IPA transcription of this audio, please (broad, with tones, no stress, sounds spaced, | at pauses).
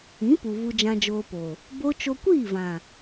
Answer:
ĩ˨˦ p u˨ v u˧ d͡ʒ ã˧ d͡ʒ oː˧ p o˨ | b o˦ t͡ʃ o˧ kʷ iː˦˨ v ã˨